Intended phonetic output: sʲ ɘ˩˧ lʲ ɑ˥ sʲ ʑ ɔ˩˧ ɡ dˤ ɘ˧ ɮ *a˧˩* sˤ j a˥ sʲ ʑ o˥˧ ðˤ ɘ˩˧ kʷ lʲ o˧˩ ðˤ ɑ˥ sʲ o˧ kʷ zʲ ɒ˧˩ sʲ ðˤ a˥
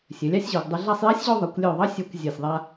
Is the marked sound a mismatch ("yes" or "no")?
yes